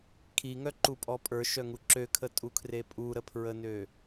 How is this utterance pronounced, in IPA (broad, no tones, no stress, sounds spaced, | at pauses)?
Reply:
kʰ i ŋ œ ǃ u pʼ ɔ pʼ ə˞ ʃ œ ŋ u ǁ ø kʰ ə tʼ u kʰ r e pʼ u ɾ ə pʰ ɹ ə n ø